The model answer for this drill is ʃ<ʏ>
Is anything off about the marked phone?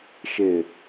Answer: yes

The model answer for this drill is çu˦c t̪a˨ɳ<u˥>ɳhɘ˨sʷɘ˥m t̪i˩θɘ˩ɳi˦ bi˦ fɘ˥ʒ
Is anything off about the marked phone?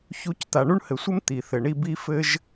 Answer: no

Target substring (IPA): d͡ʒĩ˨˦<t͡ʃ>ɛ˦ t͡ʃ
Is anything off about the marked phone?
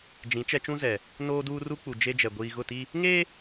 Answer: no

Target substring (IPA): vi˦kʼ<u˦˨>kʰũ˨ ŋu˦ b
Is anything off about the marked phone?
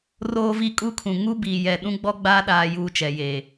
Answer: yes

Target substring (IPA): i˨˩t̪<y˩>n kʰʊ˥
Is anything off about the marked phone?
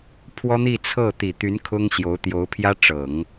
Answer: yes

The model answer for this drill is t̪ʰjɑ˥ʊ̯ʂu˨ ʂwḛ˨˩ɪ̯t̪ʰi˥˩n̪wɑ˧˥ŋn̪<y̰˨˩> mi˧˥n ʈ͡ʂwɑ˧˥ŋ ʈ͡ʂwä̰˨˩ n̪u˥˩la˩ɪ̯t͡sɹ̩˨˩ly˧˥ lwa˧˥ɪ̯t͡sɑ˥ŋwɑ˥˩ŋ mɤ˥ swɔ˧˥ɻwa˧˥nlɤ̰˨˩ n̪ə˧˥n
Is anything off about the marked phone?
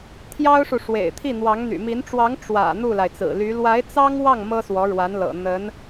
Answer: no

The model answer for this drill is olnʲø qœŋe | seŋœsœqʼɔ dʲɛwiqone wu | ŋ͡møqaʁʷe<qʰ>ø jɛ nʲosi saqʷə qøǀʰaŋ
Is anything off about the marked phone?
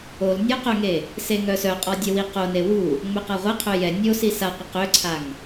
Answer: no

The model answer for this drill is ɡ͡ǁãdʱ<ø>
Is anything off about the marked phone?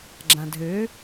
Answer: no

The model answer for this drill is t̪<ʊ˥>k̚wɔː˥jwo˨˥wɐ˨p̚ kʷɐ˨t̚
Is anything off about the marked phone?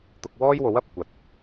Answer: yes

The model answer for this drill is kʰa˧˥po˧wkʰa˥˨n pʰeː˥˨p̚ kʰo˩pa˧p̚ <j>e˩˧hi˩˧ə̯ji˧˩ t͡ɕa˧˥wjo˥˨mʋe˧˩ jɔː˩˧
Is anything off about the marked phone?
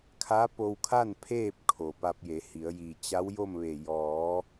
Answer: no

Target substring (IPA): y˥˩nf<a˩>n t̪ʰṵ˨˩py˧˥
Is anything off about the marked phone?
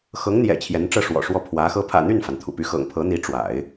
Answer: no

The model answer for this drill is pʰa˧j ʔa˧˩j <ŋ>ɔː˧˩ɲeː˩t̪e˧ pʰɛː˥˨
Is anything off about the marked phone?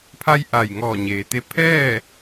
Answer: no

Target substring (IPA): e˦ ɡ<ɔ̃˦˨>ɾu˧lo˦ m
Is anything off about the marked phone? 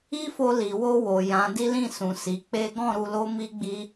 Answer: no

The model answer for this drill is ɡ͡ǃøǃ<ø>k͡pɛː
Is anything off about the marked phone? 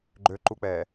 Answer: yes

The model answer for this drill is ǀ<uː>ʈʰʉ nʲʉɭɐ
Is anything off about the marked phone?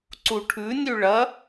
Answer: yes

